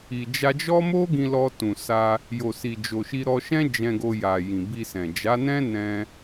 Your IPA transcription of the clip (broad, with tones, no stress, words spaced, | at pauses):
i˨ d͡ʒa˧d͡ʒɔ˦ mo˦ɡĩ˧lɔ˧ tũ˨sa˧ | jo˨si˨ d͡ʒo˨ʃi˧ɾɔ˧ ʃɛ̃˦d͡ʒɛ̃˧ɡo˧ja˨ jĩ˨bi˧sɛ̃˨ d͡ʒa˨˦nɛ̃˦nɛ̃˧